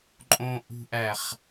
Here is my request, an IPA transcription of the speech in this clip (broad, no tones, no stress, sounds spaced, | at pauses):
ǃʼ õ ʔ ṳ ʔ æ χ